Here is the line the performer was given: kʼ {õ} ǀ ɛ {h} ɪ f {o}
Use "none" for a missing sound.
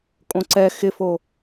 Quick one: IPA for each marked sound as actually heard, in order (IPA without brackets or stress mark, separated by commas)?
õ, x, o